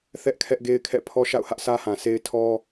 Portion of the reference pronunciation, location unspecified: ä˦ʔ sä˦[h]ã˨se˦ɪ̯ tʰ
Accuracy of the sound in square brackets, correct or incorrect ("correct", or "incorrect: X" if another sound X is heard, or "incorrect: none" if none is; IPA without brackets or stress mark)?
correct